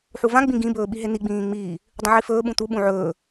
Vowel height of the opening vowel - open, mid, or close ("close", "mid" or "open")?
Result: close